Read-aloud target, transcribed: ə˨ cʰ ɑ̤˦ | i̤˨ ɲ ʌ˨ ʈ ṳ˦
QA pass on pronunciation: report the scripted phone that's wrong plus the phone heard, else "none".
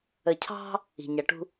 none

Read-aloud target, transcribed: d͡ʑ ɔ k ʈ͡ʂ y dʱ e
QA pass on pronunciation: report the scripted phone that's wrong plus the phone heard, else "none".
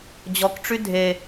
none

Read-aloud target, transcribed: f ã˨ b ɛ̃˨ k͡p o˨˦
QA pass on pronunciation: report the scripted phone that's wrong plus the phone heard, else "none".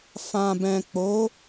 none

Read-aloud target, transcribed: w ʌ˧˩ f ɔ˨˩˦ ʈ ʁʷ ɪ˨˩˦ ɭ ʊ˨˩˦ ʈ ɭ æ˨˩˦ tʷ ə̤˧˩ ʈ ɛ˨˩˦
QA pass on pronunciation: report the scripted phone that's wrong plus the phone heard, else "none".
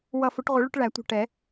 ɔ˨˩˦ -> ʊ˨˩˦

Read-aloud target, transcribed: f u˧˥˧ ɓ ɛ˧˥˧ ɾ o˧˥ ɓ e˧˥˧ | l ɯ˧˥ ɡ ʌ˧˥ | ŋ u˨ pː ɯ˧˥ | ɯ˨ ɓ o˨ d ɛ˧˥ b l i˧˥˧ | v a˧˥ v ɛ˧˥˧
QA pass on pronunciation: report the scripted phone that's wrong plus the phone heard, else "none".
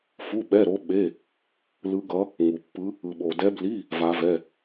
none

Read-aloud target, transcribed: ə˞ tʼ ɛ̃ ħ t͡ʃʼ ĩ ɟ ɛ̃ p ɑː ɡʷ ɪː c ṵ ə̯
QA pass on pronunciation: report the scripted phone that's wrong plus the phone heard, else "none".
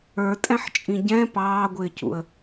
none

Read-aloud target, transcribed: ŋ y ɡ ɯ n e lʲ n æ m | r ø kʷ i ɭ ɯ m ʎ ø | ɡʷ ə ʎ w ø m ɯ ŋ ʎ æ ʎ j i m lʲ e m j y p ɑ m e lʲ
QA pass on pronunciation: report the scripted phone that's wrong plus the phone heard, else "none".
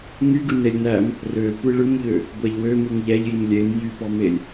ə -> æ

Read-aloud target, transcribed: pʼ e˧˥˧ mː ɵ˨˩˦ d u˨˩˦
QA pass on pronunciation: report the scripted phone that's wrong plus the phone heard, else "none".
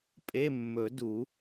none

